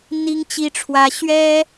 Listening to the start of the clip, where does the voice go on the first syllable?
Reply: high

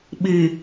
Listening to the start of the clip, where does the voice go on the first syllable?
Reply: low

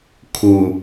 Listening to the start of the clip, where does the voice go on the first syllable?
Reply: low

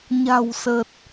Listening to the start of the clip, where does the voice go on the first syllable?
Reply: low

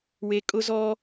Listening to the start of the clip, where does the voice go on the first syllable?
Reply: high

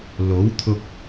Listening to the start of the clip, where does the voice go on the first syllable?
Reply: rising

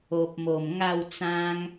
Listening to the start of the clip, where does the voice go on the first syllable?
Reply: low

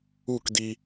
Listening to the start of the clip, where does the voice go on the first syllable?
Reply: falling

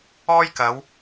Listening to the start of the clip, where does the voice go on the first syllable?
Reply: high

